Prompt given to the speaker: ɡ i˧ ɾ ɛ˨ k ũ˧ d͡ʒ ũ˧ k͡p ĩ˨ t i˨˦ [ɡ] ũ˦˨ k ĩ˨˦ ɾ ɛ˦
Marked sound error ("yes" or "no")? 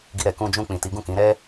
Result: no